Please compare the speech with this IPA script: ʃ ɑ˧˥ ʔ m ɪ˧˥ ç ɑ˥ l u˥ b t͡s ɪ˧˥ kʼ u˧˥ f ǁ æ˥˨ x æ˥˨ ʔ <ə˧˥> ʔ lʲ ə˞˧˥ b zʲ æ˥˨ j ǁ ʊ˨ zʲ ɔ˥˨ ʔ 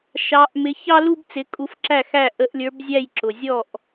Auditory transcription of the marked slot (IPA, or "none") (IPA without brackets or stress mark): ə˧˥